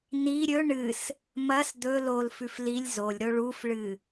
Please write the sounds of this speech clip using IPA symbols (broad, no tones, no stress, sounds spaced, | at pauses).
n i ɾʲ ɵ ɳ ɨ s | m ɐ s d̪ ɵ l o l f ʉ f l i lʲ z o lʲ ɾ o ɭ u f ɭ ɨ